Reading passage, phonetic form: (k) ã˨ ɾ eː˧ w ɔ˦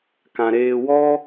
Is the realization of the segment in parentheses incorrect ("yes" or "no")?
no